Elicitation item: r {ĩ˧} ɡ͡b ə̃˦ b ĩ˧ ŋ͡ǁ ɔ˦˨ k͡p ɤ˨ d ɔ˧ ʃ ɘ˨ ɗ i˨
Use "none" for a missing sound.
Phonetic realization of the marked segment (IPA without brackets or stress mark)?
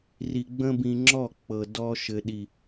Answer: i˧